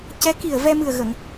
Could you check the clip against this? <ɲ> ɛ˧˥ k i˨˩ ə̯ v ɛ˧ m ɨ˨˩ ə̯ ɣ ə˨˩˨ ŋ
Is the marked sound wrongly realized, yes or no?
yes